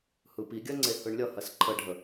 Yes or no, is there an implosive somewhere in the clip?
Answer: no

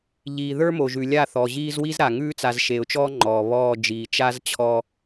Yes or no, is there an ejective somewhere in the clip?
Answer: no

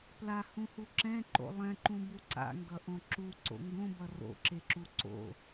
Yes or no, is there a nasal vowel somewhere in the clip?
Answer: yes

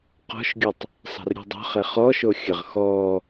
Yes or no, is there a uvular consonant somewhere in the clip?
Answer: yes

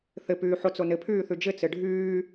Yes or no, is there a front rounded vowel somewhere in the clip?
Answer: yes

